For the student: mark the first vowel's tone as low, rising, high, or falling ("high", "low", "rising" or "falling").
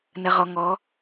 low